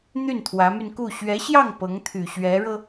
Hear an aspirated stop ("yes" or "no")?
yes